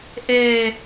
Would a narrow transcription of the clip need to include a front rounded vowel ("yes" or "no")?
no